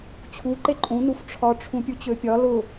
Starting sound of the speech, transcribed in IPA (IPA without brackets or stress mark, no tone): t͡ɕʰ